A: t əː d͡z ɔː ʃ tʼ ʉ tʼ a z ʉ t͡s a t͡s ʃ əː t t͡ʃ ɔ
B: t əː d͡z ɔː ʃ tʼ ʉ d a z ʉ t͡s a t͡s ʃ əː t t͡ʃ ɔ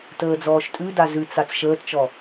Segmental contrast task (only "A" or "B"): B